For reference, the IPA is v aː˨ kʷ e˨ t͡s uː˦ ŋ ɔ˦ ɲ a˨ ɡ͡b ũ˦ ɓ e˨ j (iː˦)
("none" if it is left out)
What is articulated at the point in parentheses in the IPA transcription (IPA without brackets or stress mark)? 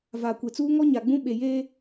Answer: eː˦